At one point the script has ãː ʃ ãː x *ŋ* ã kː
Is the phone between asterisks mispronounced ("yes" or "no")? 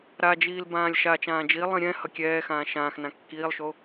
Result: yes